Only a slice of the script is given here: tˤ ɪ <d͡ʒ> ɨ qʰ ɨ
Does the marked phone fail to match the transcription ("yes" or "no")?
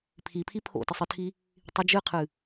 no